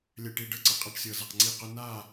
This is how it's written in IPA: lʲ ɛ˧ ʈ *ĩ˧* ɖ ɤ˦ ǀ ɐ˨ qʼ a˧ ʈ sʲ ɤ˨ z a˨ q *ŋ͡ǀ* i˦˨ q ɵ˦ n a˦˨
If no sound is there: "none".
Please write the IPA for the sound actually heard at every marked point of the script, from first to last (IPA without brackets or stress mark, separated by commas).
i˧, ŋ͡ǀ